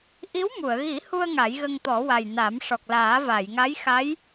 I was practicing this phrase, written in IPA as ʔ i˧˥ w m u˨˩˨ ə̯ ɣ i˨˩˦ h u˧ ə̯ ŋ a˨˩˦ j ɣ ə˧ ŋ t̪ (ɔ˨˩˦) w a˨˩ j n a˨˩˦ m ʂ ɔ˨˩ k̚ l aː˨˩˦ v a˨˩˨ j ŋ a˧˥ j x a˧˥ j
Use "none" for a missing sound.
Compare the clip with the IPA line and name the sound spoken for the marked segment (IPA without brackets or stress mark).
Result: ɔ˨˩˦